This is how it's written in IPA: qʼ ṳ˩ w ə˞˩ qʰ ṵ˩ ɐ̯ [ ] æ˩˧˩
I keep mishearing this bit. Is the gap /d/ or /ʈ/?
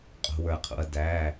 d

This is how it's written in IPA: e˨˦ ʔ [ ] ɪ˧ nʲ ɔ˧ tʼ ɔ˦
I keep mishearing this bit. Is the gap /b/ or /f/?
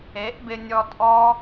b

